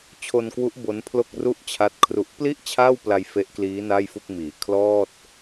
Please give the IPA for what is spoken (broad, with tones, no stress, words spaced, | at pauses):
t͡ɕʰo˧nkwu˦˥ʔ bo˦˥npʰlo˥˩k̚ru˥˩ʔt͡ɕʰa˦˥t̚ kʰru˨˩ʔpli˥˩ʔ t͡ɕʰaː˥˩wpla˧j fe˦˥ʔkliː˦˥ na˥˩jfu˥˩k̚miː˩˦ kʰlɔː˥˩t̚